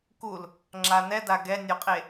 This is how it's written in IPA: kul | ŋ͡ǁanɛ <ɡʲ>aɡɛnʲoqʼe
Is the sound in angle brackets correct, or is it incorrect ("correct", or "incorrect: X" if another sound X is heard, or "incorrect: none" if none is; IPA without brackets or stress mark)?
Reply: incorrect: d